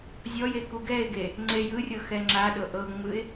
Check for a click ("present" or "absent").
present